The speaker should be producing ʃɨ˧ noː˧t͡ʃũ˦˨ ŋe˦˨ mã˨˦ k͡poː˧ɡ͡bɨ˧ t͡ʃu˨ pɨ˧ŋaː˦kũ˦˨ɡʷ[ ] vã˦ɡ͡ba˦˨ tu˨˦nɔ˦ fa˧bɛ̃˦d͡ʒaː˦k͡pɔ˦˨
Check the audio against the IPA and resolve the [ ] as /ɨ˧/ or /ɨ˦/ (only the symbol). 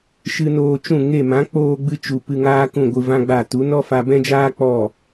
ɨ˧